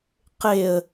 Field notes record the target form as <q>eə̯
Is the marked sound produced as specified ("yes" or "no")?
yes